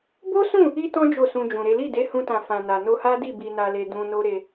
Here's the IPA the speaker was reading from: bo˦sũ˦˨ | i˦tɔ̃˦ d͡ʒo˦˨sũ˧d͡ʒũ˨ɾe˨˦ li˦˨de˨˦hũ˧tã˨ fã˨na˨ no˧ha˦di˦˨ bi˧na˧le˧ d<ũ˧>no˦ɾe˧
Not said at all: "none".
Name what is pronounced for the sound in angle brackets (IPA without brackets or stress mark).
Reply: ũ˧